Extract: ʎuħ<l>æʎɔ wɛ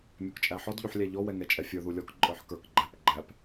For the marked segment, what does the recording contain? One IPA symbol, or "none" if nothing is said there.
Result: lʲ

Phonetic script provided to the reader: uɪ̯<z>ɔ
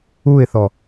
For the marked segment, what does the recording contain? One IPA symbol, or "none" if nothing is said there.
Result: θ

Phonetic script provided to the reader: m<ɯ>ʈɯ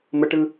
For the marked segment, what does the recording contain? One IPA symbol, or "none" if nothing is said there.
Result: ə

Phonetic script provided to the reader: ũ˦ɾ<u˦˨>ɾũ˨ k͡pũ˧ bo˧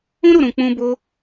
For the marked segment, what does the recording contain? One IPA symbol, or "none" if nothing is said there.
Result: u˦˨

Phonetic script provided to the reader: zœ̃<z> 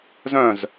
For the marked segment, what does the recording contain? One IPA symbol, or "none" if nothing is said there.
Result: z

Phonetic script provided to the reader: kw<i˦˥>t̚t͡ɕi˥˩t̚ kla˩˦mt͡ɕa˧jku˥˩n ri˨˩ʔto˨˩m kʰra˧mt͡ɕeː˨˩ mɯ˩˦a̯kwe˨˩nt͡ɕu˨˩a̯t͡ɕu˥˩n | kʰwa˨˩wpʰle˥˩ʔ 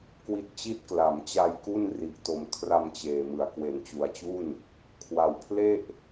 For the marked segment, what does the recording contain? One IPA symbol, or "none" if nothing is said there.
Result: i˦˥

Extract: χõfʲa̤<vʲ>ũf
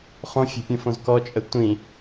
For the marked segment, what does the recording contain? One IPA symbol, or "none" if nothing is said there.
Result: pʲ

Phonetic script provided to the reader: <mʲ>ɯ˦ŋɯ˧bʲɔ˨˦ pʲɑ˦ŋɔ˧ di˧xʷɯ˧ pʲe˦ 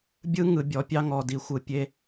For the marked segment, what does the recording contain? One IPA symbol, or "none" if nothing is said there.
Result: bʲ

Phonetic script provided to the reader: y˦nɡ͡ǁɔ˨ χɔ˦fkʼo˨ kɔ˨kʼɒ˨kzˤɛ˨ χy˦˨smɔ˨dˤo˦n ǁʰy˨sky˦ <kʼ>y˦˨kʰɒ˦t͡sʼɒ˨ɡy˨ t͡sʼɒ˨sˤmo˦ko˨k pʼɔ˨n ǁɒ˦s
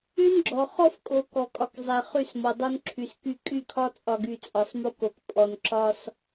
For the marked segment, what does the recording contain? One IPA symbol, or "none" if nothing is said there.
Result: kʼ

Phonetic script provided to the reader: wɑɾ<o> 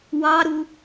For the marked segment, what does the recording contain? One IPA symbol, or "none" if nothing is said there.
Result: u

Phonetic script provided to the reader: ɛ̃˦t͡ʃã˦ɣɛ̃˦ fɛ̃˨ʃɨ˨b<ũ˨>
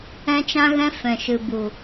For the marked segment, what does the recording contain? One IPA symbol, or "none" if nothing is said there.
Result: u˨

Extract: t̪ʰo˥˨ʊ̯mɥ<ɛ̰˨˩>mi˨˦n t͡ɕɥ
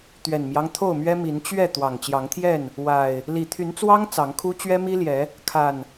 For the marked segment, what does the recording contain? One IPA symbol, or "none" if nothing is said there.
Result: ɛ˦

